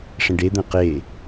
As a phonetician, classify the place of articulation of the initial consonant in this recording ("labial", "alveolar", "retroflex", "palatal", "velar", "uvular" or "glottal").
retroflex